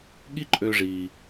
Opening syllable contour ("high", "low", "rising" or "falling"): high